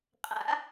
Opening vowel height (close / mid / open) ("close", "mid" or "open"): open